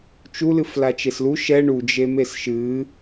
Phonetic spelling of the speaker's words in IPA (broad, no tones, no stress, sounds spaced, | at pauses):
t͡ʃ u l ɨ f l a t͡ʃ e s l u ʃ ɛ ɳ u d͡ʒ e m e s ʃ ɨ